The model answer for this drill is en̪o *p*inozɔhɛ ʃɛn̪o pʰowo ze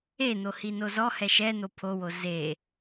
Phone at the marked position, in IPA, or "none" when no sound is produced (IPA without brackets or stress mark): h